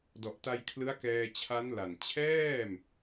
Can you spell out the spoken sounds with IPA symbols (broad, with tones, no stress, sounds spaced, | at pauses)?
d ɔ˨˩ ʔ t a˧ j kʰ l ɯ˦˥ a̯ k ɛː˧ t͡ɕʰ a˦˥ n l a˨˩ n t͡ɕʰ ɛː˥˩ m